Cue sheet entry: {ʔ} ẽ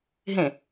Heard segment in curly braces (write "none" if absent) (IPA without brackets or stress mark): ɦ